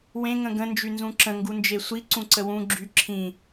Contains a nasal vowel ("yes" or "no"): yes